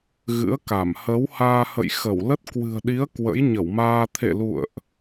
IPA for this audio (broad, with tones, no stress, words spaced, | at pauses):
ɣɨ̰˧˥ə̯ka˧˩m hə˨˦whaː˧hə̰˧˨jxə˧˩w lə˦˥t̚kwɨ̤˨˩ə̯ɗi˨˦ə̯ kwə̰˧˥j ɲə˧˩wmaː˧ t̪ʰḛ˧˨lṵ˧˨ə̯ʔ